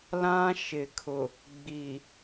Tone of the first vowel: high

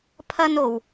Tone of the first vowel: high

